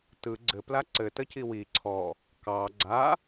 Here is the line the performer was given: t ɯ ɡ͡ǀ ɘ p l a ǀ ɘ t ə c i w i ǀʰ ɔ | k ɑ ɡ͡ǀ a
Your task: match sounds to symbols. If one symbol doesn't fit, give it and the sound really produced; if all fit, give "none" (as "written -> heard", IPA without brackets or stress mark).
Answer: none